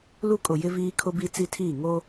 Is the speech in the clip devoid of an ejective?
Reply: no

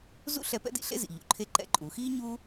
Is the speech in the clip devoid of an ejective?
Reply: no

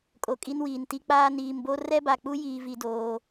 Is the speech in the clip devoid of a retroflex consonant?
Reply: yes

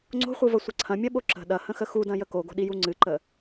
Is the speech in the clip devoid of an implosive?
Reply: no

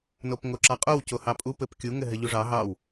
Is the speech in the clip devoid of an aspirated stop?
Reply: yes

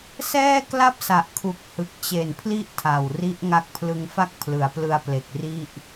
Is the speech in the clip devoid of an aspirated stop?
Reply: no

